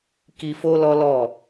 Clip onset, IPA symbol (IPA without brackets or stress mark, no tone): k